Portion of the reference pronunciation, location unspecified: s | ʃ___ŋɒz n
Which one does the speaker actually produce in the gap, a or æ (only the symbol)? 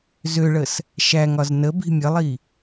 æ